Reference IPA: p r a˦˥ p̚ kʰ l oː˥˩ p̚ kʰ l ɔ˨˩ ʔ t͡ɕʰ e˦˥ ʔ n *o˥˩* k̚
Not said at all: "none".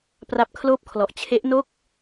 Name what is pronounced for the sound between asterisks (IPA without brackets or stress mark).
o˥˩